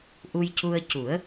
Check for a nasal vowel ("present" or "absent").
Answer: absent